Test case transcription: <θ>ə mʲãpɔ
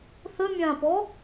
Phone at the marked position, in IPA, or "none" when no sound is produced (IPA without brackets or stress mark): θ